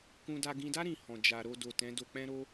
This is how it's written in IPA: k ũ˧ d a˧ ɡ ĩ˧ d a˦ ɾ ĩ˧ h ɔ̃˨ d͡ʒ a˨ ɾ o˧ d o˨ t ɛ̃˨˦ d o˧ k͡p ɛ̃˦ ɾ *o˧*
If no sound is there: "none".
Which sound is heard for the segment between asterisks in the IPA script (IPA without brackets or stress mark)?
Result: o˦